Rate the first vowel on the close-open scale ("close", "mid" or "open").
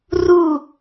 close